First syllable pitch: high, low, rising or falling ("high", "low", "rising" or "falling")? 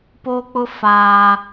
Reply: high